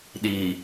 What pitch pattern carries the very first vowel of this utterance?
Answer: low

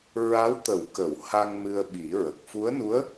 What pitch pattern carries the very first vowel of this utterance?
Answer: rising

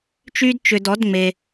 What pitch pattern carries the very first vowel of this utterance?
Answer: high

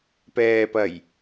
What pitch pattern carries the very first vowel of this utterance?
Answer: low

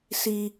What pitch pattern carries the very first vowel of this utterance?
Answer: low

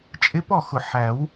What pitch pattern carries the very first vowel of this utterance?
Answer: rising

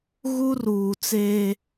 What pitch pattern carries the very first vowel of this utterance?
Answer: high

